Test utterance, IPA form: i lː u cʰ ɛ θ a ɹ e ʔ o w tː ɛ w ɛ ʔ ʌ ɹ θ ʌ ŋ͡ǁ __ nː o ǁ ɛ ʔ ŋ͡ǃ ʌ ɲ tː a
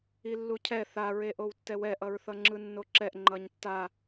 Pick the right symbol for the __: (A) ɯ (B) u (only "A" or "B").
A